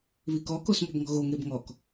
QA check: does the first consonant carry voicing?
yes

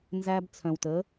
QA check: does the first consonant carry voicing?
yes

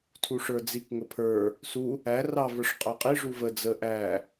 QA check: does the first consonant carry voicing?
no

